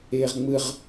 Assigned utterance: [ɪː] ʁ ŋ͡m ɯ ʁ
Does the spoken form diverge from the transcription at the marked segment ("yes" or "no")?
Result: no